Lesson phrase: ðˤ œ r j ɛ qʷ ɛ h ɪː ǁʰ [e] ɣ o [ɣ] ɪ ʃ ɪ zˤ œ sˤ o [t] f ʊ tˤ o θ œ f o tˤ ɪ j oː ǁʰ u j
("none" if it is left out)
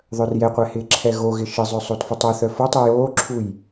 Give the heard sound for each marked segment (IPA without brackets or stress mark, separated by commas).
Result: ɛ, ɣ, t